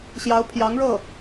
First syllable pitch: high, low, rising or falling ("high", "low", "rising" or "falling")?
rising